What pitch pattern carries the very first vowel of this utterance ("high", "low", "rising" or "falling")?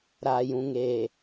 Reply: low